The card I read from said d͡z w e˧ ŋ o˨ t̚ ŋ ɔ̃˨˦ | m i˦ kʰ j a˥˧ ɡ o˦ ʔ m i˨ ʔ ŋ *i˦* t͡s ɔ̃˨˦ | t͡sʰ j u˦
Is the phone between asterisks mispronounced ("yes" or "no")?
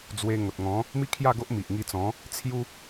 yes